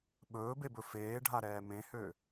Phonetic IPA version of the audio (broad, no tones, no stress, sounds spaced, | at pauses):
ɓ ɵː b e b ɵ f eː ɖʱ a ɾ ɛː m ẽ h ø